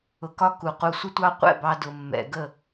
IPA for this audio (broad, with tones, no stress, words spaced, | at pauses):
ʊ˨kɒ˧ ku˨qu˧sʷə˦tʷɑ˦ qʷɛ̰˦˨bɑ˧ dʊ˨mːɛ̰˨ ɡə˦˨